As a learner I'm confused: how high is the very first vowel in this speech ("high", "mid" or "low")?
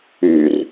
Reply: high